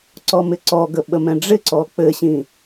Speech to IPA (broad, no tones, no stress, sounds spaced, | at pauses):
ǀ ɔ m ɪ ǀ ɔ ɡ ə ɓ ə m ɛ̃ ɖ͡ʐ ɪ ǀ ɔ k͡p ɘ ɕ ĩ